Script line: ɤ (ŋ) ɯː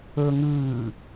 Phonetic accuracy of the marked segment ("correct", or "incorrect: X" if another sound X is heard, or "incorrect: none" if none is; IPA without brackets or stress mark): correct